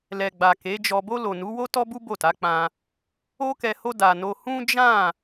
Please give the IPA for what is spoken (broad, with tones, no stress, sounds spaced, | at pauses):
l ɛ˨ ɡ͡b a˨ k e˨˦ d͡ʒ ɔ˧ b o˧ l o˨ n u˨˦ w o˦ t ɔ˦ b u˦ b o˦˨ t a˨˦ k͡p ã˧ | o˦ k ɛ˧ h o˦ d a˧ n o˦ h ũ˦ d͡ʒ ã˦˨